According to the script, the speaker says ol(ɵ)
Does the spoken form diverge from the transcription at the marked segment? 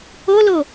yes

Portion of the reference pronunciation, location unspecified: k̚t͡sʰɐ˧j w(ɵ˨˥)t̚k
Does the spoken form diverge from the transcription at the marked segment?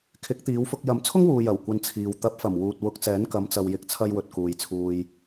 yes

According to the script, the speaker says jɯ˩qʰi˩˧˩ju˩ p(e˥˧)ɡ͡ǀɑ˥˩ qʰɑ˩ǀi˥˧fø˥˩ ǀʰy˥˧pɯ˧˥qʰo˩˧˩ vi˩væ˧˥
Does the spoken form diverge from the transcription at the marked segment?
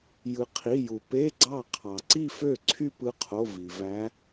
yes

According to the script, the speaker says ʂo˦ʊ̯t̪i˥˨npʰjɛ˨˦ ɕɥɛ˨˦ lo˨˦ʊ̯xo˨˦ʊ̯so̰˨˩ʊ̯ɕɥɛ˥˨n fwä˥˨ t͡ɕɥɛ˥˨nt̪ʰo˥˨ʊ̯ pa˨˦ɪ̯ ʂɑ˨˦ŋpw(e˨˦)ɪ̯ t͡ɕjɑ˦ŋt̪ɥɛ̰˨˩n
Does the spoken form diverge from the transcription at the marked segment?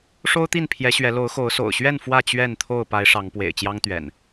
yes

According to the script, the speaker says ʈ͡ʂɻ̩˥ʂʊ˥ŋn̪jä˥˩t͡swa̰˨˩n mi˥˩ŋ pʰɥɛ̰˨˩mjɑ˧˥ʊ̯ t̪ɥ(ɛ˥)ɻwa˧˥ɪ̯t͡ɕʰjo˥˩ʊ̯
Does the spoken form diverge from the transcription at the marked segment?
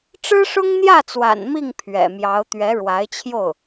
yes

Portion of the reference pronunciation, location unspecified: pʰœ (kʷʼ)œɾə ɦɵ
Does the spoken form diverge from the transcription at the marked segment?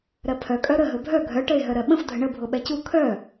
yes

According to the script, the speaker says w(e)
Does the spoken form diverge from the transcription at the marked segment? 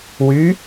yes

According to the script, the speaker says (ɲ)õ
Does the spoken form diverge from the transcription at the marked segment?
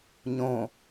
no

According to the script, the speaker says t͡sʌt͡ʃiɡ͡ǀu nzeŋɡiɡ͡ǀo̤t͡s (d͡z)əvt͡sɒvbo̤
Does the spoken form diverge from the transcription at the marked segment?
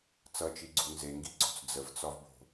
no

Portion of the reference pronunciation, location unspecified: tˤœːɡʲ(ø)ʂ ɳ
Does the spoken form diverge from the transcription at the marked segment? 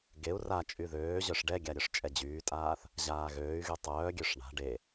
no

